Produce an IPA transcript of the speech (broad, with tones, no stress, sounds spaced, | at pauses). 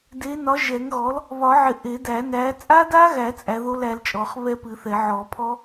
d e˨˥ n ɒ˨˥ ʒ ɛ˨˩˦ ŋ ɣ ɔ˨˥ l | β ɒ˨˩˦ ʕ ɪ˨˩˦ ʔ e˨˩˦ d æ˨˩˦ n æ˨˥ t͡sʼ a˦˥ d a˦˥ ɣ æ˨˩˦ t͡sʼ æ˨˥ ð o˦˥ l æ˨˥ l t͡ʃʼ ɔ˨˩˦ χ β ɛ˦˥ p ɨ˨˩˦ θ ɛ˨˩˦ ʕ ɔ˨˩˦ pʰ ɔ˦˥